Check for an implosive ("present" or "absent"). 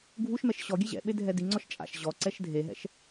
present